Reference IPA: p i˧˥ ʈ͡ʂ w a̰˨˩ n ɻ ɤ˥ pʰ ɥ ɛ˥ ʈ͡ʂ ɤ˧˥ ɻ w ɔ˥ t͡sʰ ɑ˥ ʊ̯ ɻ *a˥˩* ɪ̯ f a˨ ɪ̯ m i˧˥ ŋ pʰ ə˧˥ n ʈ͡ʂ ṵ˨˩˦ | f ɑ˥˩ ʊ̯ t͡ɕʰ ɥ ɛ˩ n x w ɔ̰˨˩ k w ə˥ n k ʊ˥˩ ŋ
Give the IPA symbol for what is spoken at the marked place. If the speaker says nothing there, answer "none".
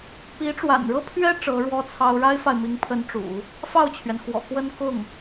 a˥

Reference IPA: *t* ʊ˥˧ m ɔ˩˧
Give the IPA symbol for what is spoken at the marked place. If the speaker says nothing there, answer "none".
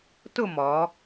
t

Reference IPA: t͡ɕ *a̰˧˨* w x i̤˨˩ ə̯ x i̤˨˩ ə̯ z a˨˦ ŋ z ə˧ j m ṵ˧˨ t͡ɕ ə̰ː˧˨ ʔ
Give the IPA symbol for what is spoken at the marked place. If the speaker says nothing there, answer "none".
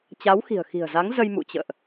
a˨˦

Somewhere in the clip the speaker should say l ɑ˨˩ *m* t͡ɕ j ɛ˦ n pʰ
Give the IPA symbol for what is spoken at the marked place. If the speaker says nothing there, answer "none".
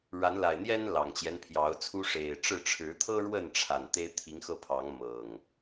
ŋ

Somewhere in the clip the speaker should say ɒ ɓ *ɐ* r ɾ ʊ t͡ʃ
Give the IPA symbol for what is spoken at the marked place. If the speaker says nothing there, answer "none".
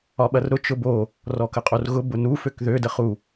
ɐ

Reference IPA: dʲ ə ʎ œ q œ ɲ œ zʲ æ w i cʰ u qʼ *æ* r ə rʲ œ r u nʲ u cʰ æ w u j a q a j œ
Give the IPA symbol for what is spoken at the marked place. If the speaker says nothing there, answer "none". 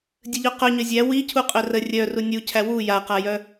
œ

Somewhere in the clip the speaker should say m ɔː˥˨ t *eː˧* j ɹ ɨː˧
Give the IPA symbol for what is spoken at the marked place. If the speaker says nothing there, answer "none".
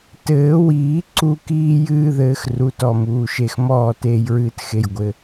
eː˧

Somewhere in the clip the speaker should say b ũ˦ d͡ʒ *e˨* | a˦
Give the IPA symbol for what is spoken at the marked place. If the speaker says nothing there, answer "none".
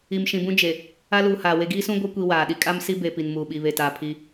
e˨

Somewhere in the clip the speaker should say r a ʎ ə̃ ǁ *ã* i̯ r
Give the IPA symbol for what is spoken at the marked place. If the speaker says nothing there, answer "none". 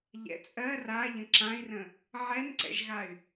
ã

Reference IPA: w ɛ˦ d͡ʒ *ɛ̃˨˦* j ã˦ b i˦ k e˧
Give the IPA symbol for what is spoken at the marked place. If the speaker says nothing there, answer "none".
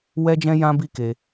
ɛ̃˦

